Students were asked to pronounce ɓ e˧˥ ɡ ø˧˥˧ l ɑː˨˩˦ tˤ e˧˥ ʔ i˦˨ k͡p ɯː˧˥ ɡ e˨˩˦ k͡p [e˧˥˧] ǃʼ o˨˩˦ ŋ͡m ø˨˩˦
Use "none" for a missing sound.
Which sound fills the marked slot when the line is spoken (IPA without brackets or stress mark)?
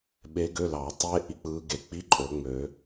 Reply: i˧˥˧